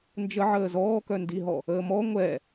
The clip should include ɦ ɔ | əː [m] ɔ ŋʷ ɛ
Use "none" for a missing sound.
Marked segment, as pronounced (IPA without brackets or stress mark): m